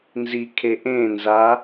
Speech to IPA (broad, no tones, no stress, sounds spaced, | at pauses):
n z i kʰ e ʔ ẽ n z a